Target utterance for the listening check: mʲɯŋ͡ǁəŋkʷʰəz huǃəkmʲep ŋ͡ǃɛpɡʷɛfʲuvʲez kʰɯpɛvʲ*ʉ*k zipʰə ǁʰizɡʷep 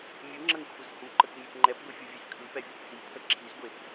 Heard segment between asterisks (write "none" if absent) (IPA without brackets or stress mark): ə